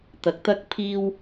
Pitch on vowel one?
low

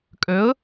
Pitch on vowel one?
rising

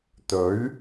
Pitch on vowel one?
rising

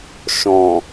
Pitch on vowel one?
low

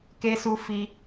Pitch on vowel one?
high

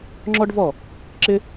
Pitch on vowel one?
high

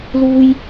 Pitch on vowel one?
high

